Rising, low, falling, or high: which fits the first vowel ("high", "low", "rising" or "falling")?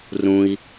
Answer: low